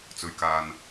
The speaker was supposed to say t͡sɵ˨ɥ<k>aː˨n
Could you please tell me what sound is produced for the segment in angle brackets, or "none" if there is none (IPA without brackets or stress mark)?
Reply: k